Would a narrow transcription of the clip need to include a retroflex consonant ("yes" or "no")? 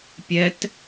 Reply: no